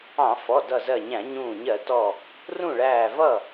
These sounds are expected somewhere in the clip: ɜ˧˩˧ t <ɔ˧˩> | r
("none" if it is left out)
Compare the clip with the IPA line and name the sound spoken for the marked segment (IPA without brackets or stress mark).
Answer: ɔ˧˩